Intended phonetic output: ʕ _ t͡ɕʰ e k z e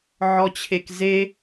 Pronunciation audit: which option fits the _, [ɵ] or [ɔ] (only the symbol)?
ɔ